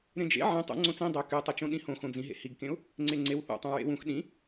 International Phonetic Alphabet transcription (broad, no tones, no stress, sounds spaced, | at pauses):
ɾ ẽ d͡ʒ ḛ ʕ ẽ tˤ ṵ ŋ͡ǀ õ t͡s ĩ dˤ ø k y tˤ ɯ t͡ʃ õ ɗ ĩ h õ x õ d͡z ĩ ɦ ḛ h i ɡ k ẽ ʊ̯ | ŋ͡ǀ e ŋ͡ǀ e w θ ṵ tˤ ũ ɹ ḛ w ũ x ɗ ĩ